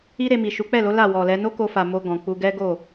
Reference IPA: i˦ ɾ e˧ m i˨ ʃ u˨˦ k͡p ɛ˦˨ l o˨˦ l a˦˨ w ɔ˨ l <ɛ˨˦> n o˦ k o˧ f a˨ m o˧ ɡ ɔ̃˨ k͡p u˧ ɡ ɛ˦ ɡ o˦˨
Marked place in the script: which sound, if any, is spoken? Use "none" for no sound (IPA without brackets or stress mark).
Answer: ɛ˨˦